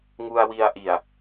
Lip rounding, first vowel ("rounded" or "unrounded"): rounded